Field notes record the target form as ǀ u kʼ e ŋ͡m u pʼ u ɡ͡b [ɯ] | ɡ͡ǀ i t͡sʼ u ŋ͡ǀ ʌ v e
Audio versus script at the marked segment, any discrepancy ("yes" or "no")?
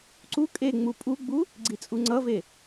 yes